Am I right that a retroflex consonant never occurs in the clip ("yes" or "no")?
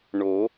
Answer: no